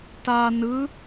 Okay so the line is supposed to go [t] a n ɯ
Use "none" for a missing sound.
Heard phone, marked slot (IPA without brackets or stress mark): t